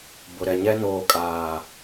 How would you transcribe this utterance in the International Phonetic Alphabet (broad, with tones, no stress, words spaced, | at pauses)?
bʊ˨ɾɛ˨ɲɛ˦ noː˨kʼaː˨